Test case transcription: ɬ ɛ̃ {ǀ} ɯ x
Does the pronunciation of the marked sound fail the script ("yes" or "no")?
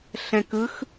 yes